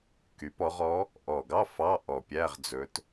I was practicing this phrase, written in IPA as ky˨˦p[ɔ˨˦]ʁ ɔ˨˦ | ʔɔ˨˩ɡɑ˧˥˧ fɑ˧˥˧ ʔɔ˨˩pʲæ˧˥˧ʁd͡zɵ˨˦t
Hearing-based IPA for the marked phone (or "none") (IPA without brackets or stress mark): ɔ˨˦